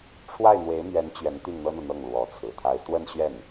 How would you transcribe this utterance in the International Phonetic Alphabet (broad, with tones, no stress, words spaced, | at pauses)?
ʈ͡ʂʰwa˥˩ɪ̯n̪we˧˥ɪ̯ mɥɛ˧˥n t͡ɕɥɛ˧˥n t̪y˥˩nn̪ɤ˥n̪ɤ˨ n̪ɤ˥˩ŋlwɔ˧˥t͡sʰɹ̩˨˩t̪ʰa˥ɪ̯ t̪wə˥˧nɕɥɛ˥˩n